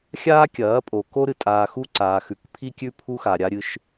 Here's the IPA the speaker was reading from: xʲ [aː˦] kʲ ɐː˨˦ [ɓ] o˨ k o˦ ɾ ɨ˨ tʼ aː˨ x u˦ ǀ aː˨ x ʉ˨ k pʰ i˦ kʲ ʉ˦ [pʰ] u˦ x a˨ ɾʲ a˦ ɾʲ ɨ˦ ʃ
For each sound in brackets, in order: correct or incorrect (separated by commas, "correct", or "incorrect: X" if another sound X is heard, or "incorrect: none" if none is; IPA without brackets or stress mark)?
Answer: correct, incorrect: pʼ, correct